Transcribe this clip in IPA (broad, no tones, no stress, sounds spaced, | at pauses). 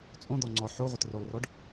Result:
t͡sʼ õ d̪ ɔ ŋ͡ǀ ɔ ħ o ʁʷ ə t r o lˠ r ɔ ɖ